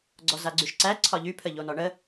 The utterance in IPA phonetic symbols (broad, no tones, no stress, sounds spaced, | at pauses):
ɡ͡ǀ ɔ z a ɡ͡ǀ y ʃ ǀ æ ǀʰ ɒ ʎ y pʰ ə ʎ o n ɔ ɳ ə